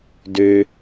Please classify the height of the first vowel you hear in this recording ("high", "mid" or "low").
mid